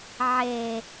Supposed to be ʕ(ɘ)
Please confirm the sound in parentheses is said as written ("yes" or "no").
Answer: no